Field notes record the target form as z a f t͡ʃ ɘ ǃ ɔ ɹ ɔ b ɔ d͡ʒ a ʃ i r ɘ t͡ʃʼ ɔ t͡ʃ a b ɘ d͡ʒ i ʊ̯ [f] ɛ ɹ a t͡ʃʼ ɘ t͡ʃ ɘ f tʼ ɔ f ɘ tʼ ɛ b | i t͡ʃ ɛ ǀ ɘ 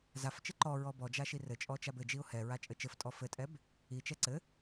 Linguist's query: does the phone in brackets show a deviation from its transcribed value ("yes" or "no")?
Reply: yes